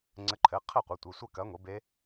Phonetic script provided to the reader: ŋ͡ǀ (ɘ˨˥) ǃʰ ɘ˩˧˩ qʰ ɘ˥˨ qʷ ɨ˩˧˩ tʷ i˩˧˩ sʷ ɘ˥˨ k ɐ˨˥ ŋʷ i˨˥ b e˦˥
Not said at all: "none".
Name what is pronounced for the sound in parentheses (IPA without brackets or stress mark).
ɘ˨˥